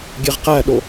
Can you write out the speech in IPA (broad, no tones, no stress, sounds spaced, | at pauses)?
ɡʲ e ʁ q æ ɗ o